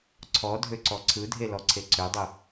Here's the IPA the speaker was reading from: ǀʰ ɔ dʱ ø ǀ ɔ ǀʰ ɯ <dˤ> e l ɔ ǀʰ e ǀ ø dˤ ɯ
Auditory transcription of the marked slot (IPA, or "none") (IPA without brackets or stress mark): dʱ